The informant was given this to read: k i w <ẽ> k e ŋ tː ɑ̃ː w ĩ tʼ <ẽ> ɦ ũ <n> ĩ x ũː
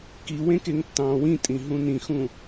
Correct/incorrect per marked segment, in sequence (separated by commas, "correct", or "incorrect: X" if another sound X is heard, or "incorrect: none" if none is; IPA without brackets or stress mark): correct, incorrect: ĩ, correct